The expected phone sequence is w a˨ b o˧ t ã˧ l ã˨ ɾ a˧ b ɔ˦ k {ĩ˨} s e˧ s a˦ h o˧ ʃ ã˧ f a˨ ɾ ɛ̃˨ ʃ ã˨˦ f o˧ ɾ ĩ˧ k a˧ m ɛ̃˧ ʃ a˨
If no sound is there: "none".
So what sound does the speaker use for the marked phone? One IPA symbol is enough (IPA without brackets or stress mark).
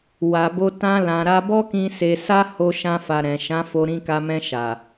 ĩ˧